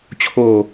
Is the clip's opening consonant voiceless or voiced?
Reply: voiceless